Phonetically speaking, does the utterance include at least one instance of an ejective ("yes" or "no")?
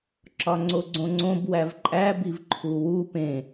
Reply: yes